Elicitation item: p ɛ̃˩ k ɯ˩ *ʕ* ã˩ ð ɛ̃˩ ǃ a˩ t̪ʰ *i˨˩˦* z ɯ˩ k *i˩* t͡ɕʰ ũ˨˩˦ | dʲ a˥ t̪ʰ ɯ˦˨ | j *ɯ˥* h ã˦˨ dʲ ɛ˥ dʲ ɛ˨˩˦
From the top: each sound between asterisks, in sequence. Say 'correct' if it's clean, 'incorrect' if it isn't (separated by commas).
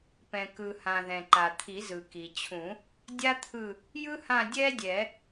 incorrect, correct, correct, correct